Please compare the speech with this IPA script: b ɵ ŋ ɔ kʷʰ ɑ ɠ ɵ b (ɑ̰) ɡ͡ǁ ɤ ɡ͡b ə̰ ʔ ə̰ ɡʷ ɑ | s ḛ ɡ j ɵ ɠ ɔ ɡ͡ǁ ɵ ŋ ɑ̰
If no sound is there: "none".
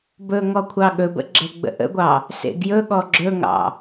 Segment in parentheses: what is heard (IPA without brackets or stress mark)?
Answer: ə̰